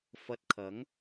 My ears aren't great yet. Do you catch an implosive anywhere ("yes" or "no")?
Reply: no